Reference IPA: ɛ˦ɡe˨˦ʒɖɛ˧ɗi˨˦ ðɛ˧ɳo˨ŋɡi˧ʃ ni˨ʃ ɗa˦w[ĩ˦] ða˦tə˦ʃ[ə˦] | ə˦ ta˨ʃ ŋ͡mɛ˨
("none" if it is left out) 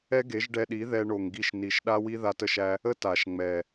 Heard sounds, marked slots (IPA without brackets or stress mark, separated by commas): i˦, æ˦